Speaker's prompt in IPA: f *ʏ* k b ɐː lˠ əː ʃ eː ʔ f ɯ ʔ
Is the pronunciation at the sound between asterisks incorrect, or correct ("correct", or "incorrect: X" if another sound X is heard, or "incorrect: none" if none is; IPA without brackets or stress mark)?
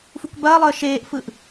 incorrect: u